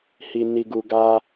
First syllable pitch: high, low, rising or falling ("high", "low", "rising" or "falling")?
low